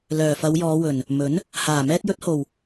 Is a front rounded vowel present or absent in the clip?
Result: present